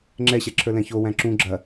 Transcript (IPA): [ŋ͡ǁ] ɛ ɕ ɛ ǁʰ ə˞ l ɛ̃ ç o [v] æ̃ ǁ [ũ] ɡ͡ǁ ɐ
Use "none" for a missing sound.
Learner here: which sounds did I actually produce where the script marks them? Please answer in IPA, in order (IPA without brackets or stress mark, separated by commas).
ŋ͡ǁ, w, ũ